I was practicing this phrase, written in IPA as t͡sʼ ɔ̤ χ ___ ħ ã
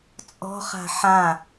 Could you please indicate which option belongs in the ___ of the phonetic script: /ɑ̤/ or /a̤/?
a̤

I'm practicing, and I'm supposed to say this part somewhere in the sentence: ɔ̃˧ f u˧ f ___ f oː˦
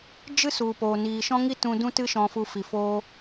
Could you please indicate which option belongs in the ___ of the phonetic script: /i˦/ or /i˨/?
i˨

